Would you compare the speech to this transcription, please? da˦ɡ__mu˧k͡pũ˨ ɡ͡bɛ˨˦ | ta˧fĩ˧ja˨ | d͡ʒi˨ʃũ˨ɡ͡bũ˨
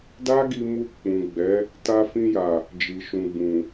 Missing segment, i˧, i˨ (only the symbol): i˧